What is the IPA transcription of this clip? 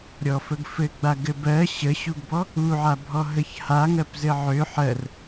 ɾʲ ɔ f ə ɡ f ɘ ɡ͡b a ɡ ɘ b ɜ ɕ ə ɕ u ɡ b ɔ | u ʕ a bʱ ɔ ɦ ə ç h a ŋ ɜ p z ɘ ʕ ø ħ ɜ r

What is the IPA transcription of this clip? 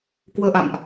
k w əː˧ ʔ a̰˧˨ m ʔ

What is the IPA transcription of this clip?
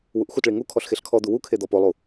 w u ʔ x u t ɭ i ŋ u kʰ ɔ ɬ x e ɬ kʰ ɔ d̪ u w u kʰ e d̪ ɔ p o lˠ u

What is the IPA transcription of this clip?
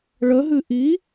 ɭ ə ɦ ɨ ʔ i

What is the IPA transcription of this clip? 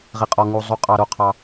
ʁ i˩ qʼ ɔ˩ ŋ u˩ zˤ u˩ qʼ ɑ˩ ɾ o˩ qʰ ɑ˩

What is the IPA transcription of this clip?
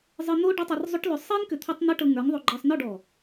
zˤ ɨ˧ n̪ o˦ ɖ ʏ˦ tˤ ɨ˧ r zˤ ʏ˦ ʈ l ʏ˧ sˤ i˦ n k ʏ˧ t̪ʰ ɔ˦ tˤ n̪ i˦ ʈ ɤ˧ ŋ ə˞˨˦ ŋ ðˤ o˧ ɡ͡ǃ ɤ˧ sˤ n ɔ˦˨ ɖ ɔ˨

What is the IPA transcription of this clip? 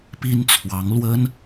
p i˥ n t͡sʰ w ɑ˧˥ ŋ l w ə˥ n

